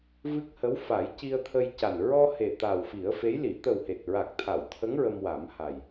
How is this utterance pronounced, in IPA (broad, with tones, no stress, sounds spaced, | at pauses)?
v ɨ˦˥ k̚ h ə˧˥ w f a˨˩˦ j c i˧ ə̯ t̪ʰ ə˧ j c a˨˩ n ɹ ɔ˧ h e˨˩ t̪ a˨˩ w f i˨˩˦ ə̯ f e˧˥ j l i˨˩˨ t̪ ə˨˩ w h e˨˩ t̚ ɹ a˨˩ k̚ t̪ʰ a˨˩˨ w t̪ʰ ə˧˥ ŋ ɹ ə˧ m w a˨˩˦ m h a˨˩ j